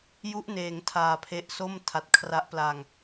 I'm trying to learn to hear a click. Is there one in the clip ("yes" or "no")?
no